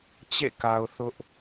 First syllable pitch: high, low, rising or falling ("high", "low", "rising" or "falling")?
falling